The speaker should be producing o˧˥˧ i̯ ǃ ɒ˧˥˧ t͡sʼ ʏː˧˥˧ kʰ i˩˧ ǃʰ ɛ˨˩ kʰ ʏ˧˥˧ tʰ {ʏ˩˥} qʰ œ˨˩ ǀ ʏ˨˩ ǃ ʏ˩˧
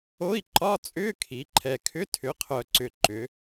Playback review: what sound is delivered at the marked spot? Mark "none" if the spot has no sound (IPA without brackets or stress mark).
ʏ˩˥